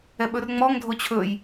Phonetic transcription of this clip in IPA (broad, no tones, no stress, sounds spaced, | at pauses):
ɛ ɓ ɵ r ŋ͡m ɔ ŋ dʱ o t͡ɕʰ ɵ j